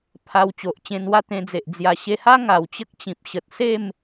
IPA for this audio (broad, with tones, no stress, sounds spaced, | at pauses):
pʰ a˧ w t͡ɕ o˨ ʔ t͡ɕ ẽ˧ n w a˥˧ t̪ ẽ˧ d͡z e˨ ʔ d͡z j a˨˩ ɕ e˧ h a˦ ŋ a˨˩ w t͡ɕ ə˦ k̚ t͡ɕ ĩ˨ p̚ ɕ ə˨ t̚ s e˥˧ m